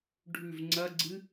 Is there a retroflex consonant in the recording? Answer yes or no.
yes